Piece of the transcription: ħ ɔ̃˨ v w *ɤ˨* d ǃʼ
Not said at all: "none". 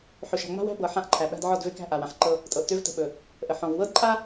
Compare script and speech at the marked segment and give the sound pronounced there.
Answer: ɤ˦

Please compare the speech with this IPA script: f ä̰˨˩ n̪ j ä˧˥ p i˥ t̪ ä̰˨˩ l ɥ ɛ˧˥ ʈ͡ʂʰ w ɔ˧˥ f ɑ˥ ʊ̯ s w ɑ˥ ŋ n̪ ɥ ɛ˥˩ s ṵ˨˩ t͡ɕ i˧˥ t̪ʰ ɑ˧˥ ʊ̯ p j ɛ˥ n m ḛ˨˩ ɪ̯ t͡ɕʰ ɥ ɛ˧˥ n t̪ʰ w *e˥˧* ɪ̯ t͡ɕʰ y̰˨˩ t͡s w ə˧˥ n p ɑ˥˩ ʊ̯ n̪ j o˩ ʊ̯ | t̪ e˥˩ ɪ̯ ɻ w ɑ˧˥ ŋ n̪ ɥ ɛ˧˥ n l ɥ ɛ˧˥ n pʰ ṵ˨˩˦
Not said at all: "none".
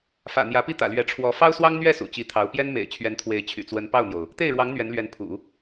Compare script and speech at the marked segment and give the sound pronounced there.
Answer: e˧˥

